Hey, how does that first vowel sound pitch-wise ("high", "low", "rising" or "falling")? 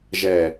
low